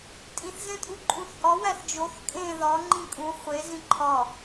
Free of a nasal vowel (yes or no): no